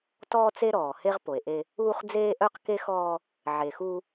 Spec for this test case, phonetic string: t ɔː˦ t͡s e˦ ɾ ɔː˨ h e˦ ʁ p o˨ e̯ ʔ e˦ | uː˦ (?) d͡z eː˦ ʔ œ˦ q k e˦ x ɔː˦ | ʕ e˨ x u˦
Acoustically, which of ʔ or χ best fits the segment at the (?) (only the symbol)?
χ